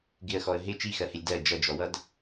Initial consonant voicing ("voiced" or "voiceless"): voiced